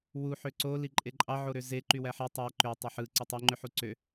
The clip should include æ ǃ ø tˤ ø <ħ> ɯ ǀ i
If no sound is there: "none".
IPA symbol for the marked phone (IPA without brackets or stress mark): ħ